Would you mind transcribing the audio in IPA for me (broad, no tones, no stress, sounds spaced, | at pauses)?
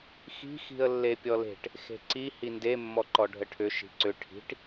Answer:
x i̤ x i̤ ə̯ lː e pʲ ɔ l e̤ ʈ | x e̤ ǀ i h i n d e mː ɔ ǃ ɔ ɖʱ ə ʈʰ ʏ ʃ i̤ ǀ ʏ ʈʰ i̤ ʈ